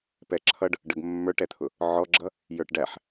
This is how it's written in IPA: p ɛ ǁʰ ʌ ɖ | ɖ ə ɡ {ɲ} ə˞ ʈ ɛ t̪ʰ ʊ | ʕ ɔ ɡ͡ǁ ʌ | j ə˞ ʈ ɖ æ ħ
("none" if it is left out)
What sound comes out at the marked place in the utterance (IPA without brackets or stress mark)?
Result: mː